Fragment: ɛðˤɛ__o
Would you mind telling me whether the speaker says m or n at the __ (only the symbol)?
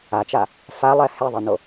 n